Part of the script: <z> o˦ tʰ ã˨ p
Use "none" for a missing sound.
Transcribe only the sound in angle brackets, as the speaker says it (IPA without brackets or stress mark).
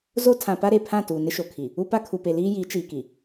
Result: z